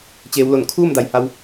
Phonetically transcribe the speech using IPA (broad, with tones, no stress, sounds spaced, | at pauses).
t͡ɕ eː˩˧ w l o˧˩ n kʰ uː˥˨ m d a˩ j h a˧ w